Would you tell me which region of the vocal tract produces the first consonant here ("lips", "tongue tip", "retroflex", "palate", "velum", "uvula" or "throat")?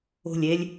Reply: tongue tip